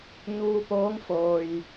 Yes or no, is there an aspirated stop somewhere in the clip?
no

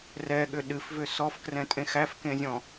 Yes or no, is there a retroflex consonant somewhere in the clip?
no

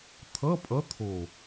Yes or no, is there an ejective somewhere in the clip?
yes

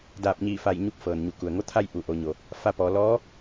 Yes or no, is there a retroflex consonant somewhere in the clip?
no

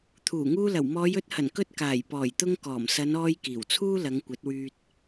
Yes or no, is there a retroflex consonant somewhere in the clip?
no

